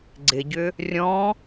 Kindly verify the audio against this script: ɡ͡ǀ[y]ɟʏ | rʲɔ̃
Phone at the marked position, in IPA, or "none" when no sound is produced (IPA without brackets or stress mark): ɪ